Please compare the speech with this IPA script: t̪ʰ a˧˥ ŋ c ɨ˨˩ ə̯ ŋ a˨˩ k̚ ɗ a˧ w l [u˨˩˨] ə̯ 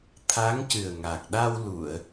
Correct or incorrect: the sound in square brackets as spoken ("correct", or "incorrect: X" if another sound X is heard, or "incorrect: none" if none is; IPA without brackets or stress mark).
correct